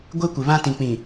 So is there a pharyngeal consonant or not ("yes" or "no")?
no